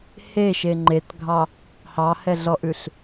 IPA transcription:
h e ʃ e ŋ͡ǃ e t ɡʱ ɑ | h ɑ h ɛ ɮ ɔ ʔ ʉ ɬ

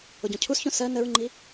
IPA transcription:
ʊ ɟ ɔ̃ cʰ u s ç õ s ɜ n ə ɹ ŋ͡ǃ i

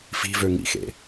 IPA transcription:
f i̤ v ø ŋ ḭ x ḛ

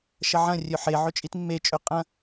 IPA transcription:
ʃ ɐ ʕ ɐ̃ rʲ ɵ ħ e ʕ ɵ t͡ʃʼ i t mː e t͡ʃʼ ɵ qʼ ɐ̃

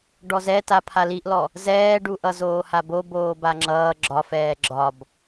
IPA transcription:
ɖ ɔ z ɛ t a pʰ a l i ʔ l ɔ | z ɛː ɖ u ʔ ʌ z oː h a b o b oː b a ŋ͡ǁ ʌː ɡ͡ǁ ɒ f ɛː ɡ͡ǁ ɒ b

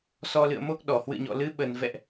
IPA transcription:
s ɔ˧ l ɨ̰˧˨ ə̯ m o˦˥ k̚ ɗ ɔ˧˩ h w ɨ̰˧˨ ɲ ɔ̰˧˨ l ɨ˨˦ ɓ ə˨˩ n v ɛ̰˧˨ ʔ

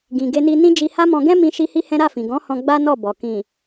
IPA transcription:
ɡ ĩ˨ ɡ e˧ n i˧ n ĩ˦ d͡ʒ i˧ h a˦ m ɔ̃˧ ɡ ɛ̃˦ m ĩ˧ ʃ i˦ h i˦ h ɛ̃˦ ɾ a˦˨ f ĩ˨ ɡ ɔ̃˨˦ h ɔ̃˧ ɡ͡b a˦ n ɔ˦˨ b ɔ˨ k ĩ˨

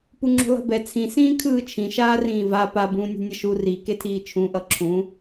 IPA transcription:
p u ŋ͡ǁ ṳ lˠ e̤ b ɛ t͡sʰ ĩ s ĩː kʰ ɯː t͡ʃʰ ĩ ʃ aː r ĩː v a p a b ũː nʲ e̤ nʲ ʌ ʃ u r i k e tʰ iː t͡ʃʰ ũ ʔ ʌ ǁʰ ũ

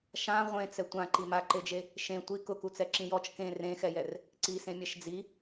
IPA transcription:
ʃ ã ʁʷ ẽ t͡s ɛ tʷ ã ǃ i m a ǃ e d͡ʒ e | ʃ ẽ tʷ i k ʊ k u t͡s ɛ ǁ ĩ j ɔ t͡ʃ k ẽ r ẽ x ɛ j ɛ r | ǀ i s ẽ mʲ ɛ ʃ d͡z i

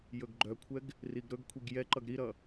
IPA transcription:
j ɵ ɡ ɡ͡ǃ œ kʷʰ ɛ ɡ | r i ɡ ɾ ɵ ɡ kʷʰ i ɡ j ɛ ǃ ʌ ɡ ɾ i ɾ ʌ

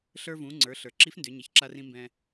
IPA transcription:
ɬ ə˞˧ v ũ˩˧ ŋ͡ǀ ə˞˩˧ ɬ ə˞˩ ǁ i˧˥ f n d ʏ˩˧ ɲ ɪ˩˧ ç ǁ a˧ r ĩ˧ m b ɛ̃˧

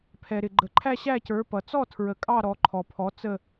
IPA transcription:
pʰ ɛ˨ ɾ ɪ˨ ɡ͡ǃ ə˨ ǃʰ æ˥˧ ɕ æ˥˧ c ə˞˨˦ p ʌ˨ t͡s ɔ˥˧ tʰ ɹ ə˨˦ kʼ ɑ˥˧ ɾ ɔ˨˦ ǃʰ ɔ˨ pʰ ɔ˨˦ t͡s ə˥˧

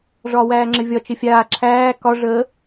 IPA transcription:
ʐ ɒː w æː ŋ͡ǁ ɘ vʲ ɒ t͡ʃ ɘ fʲ aː ǁʰ æː k ɒ ʐ əː

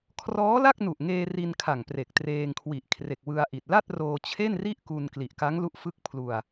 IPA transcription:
kʰ r ɔː˦˥ l a˥˩ k̚ n u˨˩ ʔ ŋ eː˧ r i˧ n kʰ a˨˩ ŋ p r e˨˩ k̚ t r eː˧ ŋ kʰ w i˨˩ ʔ kʰ r e˨˩ k̚ w ɯ˧ a̯ ʔ i˨˩ t̚ l a˥˩ t̚ r oː˧ t͡ɕʰ e˥˩ n r i˥˩ ʔ k u˧ n k l i˨˩ ʔ k a˦˥ ŋ l u˦˥ ʔ f ɯ˦˥ k̚ pʰ l u˧ a̯

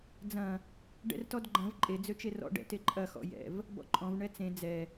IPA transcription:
d͡z ɐ̃ | ɖ ɛ̰ r t ɔ d ɡ͡ǃ ɐ̃ v ǃʼ e d͡z ø t͡ʃ e r ɔ̰ ɖ ɛ̰ t e ǃʼ ɐ x ɔ̰ j ɛ̰ v | b ɔ̰ ǃʼ ɔ̃ v ɳ ɛ t͡s ẽ d͡z ɛ

